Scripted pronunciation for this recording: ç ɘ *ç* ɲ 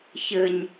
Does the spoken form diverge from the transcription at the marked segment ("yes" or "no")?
yes